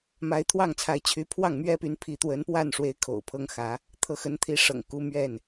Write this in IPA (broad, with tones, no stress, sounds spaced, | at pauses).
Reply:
m a˨˦ ɪ̯ t̪ʰ w ɑ˥˨ ŋ t͡sʰ a˨˦ ɪ̯ t͡ɕʰ y˨˦ pʰ w ɑ˥˨ ŋ m ɥ ɛ˦ p y˨˦ n pʰ i˨˦ t̪ w ə˨˦ n p w a˥˨ n ʂ w e˨˦ ɪ̯ kʰ o̰˨˩ ʊ̯ pʰ ɤ˦ ŋ x ä˨˦ | t̪ʰ ɤ˨˦ x ə˨˦ n t̪ʰ i˨˦ ʂ ɤ̰˨˩ ŋ k u˦ m ɥ ɛ˥˨ n